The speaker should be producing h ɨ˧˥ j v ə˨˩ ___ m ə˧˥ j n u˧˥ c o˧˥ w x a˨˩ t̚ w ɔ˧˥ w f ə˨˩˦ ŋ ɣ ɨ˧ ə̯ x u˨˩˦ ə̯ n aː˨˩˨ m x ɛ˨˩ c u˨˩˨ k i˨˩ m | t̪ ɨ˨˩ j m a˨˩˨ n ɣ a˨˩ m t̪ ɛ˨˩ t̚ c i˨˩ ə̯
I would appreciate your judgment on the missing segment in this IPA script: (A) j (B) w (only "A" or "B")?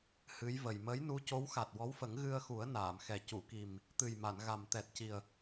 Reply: A